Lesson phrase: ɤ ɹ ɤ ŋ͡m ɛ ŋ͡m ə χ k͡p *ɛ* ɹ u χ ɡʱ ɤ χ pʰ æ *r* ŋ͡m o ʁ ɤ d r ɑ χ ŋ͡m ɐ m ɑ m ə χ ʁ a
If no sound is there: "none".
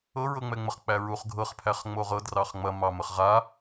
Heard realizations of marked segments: æ, χ

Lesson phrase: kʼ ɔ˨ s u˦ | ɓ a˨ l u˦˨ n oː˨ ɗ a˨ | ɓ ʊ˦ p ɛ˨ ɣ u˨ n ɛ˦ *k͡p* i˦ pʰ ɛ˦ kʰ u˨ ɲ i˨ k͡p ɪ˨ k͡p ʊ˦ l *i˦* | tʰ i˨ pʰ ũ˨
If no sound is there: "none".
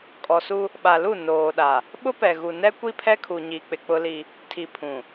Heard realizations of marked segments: kʷ, i˦

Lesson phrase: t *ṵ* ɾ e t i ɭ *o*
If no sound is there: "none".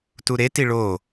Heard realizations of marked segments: u, o

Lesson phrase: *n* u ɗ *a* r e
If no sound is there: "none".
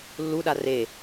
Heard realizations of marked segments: lː, a

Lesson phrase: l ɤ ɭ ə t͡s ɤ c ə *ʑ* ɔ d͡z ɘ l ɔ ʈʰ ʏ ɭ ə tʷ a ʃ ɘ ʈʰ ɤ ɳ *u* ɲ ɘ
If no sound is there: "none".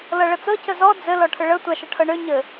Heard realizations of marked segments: z, ø

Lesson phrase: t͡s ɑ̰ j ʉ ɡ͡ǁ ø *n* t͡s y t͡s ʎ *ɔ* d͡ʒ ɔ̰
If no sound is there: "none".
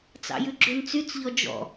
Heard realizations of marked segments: n, ɔ

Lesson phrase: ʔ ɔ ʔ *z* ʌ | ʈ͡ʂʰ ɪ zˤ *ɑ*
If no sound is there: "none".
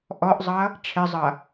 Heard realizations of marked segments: zˤ, ʌ

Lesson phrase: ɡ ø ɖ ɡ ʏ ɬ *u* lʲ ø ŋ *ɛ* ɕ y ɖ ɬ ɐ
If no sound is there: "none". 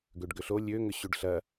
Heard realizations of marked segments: o, ʏ

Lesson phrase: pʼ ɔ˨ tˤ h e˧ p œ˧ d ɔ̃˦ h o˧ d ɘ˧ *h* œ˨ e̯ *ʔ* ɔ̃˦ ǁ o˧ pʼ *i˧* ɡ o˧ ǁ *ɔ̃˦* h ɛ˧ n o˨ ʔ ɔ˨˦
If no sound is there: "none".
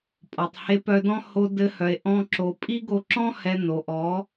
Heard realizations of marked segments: h, ʔ, i˦, ɔ̃˦

